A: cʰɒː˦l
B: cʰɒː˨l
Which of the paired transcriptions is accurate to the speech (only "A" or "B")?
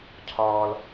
B